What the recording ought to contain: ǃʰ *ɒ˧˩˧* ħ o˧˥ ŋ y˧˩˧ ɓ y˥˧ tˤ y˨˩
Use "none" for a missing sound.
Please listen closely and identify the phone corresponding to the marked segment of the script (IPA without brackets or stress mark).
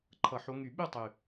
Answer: ʌ˧˩˧